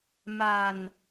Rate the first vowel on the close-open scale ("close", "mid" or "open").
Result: open